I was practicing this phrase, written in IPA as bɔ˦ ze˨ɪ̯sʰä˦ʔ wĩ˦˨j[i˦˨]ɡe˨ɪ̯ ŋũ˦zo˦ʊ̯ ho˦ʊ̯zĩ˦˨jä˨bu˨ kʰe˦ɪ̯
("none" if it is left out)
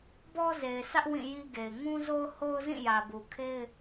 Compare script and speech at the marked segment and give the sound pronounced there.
i˦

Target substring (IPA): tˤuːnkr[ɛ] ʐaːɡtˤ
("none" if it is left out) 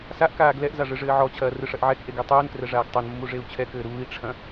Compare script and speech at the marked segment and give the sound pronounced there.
ɛ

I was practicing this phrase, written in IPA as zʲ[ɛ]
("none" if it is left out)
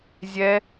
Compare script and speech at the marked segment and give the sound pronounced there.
ɛ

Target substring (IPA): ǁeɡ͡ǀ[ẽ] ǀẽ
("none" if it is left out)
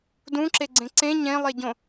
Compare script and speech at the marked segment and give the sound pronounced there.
ẽ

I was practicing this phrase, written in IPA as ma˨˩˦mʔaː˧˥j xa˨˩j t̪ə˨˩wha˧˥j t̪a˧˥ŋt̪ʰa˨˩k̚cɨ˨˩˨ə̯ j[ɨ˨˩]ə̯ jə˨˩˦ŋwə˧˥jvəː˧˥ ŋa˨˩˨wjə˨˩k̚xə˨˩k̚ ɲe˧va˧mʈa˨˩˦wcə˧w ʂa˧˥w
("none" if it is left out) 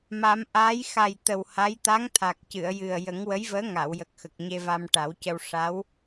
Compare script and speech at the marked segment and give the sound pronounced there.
ɨ˨˩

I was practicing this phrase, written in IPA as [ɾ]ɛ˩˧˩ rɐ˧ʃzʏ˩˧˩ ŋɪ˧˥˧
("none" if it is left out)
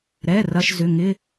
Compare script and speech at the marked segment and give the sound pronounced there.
ɾ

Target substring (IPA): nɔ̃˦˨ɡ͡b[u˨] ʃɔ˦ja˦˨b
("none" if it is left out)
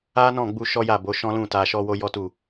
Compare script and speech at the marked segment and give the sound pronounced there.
u˧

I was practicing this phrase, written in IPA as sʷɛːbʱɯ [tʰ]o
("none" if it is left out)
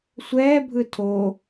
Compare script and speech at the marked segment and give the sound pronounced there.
tʰ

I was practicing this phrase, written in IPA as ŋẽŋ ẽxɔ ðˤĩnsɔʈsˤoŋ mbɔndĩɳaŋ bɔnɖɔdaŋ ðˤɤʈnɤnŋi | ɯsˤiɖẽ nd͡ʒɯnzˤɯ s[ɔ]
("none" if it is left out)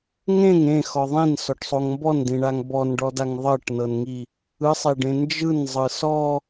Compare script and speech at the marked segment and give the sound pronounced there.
ɔ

